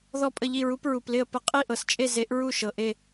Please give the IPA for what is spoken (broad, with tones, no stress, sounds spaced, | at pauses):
ð ɔ˥˧ pʼ ə˥˧ ʎ i˥˧ ɹ u˧˥ p ɹ u˨ p l ɪ˥˧ ə̯ p ə˥˧ qʼ i˥˧ ʔ ɤ˨ s t͡ʃʼ e˥˧ z e˧˥ ʔ ɹ u˥˧ ʃ ɤ˨ ʔ e˥˧